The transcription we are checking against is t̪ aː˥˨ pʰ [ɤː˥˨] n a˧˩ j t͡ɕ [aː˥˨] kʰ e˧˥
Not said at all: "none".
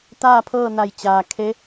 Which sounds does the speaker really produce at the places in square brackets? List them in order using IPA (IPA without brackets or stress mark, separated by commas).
ɤː˥˨, aː˩